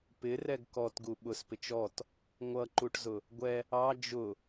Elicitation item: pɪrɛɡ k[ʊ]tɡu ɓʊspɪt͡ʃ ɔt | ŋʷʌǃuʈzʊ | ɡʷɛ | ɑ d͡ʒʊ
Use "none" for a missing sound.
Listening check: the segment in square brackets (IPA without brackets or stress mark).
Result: ɔ